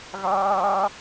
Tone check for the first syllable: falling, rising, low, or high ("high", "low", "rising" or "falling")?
high